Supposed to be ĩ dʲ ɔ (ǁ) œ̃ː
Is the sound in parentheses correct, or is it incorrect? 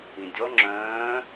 incorrect